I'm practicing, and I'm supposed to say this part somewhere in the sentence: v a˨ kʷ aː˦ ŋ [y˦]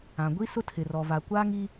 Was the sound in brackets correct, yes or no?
no